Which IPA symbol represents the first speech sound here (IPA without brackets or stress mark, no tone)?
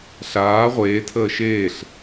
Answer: ɬ